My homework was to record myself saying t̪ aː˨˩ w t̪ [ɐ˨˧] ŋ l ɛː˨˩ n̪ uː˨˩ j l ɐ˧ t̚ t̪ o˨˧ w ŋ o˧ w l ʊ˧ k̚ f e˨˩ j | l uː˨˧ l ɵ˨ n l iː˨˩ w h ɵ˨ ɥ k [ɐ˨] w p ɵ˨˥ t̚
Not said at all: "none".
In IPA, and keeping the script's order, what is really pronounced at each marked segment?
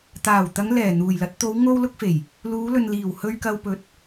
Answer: ɐ˨˧, ɐ˨

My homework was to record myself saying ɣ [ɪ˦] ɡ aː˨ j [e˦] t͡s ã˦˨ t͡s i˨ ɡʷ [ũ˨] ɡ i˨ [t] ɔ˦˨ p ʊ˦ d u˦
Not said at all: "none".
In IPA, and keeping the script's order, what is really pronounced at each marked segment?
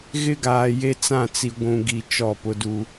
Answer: ɪ˦, e˦, ũ˨, t͡ʃ

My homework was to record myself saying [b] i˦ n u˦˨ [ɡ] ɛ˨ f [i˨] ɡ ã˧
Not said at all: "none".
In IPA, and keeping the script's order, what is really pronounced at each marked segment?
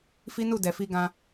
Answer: f, d, i˧

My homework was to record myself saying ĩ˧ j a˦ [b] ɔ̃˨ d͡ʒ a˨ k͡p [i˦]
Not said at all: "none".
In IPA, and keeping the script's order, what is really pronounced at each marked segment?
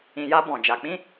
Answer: b, ĩ˦

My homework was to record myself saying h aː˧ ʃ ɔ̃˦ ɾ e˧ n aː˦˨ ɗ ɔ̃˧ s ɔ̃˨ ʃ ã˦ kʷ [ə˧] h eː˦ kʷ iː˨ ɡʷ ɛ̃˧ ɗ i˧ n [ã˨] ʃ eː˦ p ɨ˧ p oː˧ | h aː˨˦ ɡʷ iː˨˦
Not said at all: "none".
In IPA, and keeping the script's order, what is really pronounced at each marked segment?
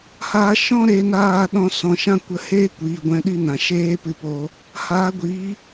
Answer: ə˧, ã˨

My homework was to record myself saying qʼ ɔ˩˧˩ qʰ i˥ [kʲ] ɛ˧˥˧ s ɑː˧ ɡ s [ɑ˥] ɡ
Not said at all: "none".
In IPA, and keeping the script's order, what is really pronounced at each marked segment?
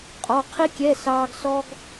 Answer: kʲ, ɔ˥

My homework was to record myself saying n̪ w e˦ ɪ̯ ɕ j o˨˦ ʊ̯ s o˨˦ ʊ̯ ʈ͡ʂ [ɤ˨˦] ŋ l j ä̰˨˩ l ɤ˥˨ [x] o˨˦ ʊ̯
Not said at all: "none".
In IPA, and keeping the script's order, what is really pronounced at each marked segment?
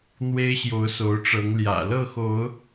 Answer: ɤ˨˦, x

